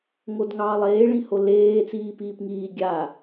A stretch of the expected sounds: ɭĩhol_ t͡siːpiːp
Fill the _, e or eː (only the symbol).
eː